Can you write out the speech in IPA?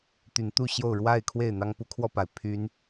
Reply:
t̪ y˨˦ n t̪ u˥˨ ɕ j o˥˨ ʊ̯ ɻ w a˥˨ ɪ̯ kʰ w e˥˨ ɪ̯ n̪ ɑ˦ ŋ p u˨˦ kʰ w ɔ˧ p a˩ ɪ̯ pʰ y˨˦ n

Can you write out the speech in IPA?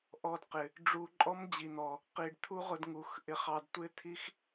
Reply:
ʔ ɔ˧ d q ɪ˨ | ɖ͡ʐ u˧ ǃʼ ɔ˦ m d͡ʑ i˨ n̪ ɔ˨ | q i˨ ɖ t̪ʰ u˦ ʁ ʊ˧ d ŋ u˨ x ʔ ɪ˧ χ ɑ˧ d tʷ ɪ˦ t̪ʰ i˦ x

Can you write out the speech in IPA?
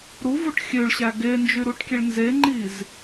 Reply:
ɾ u v u ʈ xʲ ø ɭ ɕ æ ɡ e n d͡ʒ y ɾ u ʈ kʲ e ɭ n z e ŋ͡ǃ i z

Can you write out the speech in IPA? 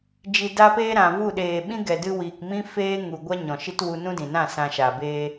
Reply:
d͡ʒ i˨ d a˧ p eː˧ ɾ ã˨ v u˦˨ ɗ eː˨ ɓ ĩ˦ ɡ ɛ˨ d ɨ˧ w iː˨ k m ĩ˦ f eː˦ ŋ u˨ ɡʷ a˦ ɲ ɔ̃˨ ʃ i˦ t w u˧ n ũ˦ d ĩ˨ n ã˦˨ s ã˧ ʃ a˨ b eː˧

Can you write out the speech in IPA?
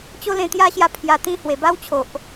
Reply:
t͡ɕ o˦ l ẽ˧ t̪ j a˦ ɕ j a˧ pʰ j a˧ t̪ ĩ˦ h w e˨˩ b a˦ w t͡ɕʰ o˨ ʔ

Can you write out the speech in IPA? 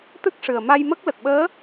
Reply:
t̪ ɨ˦˥ k̚ ʂ ɨ˨˩ ə̯ m a˧ j m ə˦˥ k̚ l ə˨˩ k̚ ɓ əː˧˥

